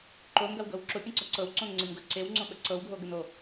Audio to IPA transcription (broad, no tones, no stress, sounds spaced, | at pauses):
ǃ o ŋ ɡ ɐ w ɡ ɤ w ǁ o pʲ õ ǀ ɐ ǀ ɤ w ǀ õ n ŋ͡ǀ e n ɡ ɤ ǀ e w ŋ͡ǀ õ ɓ ə ǀ ɤ w ɡʱ o ɡ ə n o